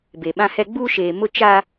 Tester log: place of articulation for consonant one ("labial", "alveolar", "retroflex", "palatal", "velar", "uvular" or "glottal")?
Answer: labial